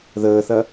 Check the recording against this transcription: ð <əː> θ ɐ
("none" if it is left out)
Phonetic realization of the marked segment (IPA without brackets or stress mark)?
əː